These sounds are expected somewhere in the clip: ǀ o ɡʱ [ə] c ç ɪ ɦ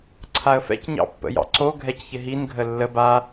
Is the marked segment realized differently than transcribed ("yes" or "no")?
yes